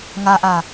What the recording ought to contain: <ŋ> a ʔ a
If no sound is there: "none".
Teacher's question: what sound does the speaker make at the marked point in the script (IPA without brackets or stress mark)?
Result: ŋ